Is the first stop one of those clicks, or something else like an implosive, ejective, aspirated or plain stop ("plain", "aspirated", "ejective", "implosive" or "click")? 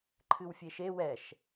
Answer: click